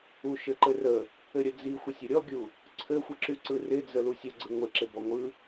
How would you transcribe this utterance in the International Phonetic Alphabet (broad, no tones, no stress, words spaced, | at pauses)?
uʃɘǃɘrə | ɘɾʲə d͡zixʷɪsʲə ɾʲɔɡʲu | ǀʰɘxʷəǁy ǀɯrɪ d͡zəlusʲə ɡ͡ǀɯŋʷɪǁɪ bɔŋʷɯ